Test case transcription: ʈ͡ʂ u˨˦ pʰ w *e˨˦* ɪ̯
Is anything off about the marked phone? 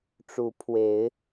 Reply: no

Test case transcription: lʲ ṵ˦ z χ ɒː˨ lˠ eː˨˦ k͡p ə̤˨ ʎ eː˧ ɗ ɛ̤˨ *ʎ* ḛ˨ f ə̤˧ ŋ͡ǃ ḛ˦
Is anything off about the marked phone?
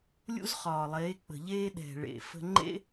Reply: yes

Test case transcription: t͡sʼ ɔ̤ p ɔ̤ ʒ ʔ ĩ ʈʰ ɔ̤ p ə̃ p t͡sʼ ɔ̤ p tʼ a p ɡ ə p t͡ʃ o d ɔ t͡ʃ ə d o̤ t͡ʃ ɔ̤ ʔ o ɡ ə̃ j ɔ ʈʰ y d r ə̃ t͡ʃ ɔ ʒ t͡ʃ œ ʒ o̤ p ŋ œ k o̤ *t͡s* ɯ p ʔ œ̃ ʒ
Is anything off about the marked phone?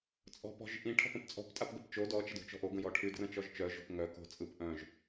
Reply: yes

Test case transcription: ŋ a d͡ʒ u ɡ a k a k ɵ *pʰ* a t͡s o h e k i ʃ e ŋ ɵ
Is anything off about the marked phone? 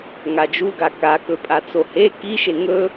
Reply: yes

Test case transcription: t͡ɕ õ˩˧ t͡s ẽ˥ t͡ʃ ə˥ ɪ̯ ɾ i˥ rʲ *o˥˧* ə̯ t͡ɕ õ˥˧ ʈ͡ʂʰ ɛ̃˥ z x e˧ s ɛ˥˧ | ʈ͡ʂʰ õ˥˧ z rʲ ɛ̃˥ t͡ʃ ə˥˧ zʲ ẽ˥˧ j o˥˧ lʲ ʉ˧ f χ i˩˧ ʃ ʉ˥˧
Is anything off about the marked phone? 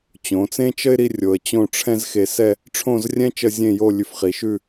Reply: yes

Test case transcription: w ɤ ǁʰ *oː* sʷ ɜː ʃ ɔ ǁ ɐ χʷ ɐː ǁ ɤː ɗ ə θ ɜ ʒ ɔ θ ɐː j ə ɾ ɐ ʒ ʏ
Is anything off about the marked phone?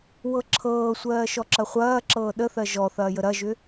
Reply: yes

